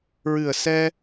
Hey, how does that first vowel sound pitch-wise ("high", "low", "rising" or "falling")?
low